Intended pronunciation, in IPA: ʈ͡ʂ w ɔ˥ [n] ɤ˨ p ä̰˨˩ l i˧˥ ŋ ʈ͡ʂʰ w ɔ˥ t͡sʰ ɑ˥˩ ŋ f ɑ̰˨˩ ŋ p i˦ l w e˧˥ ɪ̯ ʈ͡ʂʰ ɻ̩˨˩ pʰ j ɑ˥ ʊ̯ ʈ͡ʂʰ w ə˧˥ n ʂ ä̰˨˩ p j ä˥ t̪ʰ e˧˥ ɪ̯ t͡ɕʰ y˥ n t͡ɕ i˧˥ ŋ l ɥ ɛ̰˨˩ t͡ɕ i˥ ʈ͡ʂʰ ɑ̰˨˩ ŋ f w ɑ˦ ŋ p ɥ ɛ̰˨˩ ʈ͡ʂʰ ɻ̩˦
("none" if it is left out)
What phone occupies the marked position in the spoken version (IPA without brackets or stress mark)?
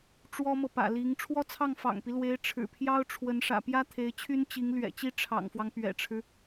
m